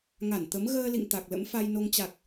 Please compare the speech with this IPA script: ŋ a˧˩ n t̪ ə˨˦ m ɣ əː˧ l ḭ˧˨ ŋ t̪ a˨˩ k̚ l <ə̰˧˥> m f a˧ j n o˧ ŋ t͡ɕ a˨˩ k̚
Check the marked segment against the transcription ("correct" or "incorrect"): correct